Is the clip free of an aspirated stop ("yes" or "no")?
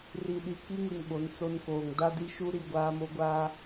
yes